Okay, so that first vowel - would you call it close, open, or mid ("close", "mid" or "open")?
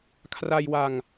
open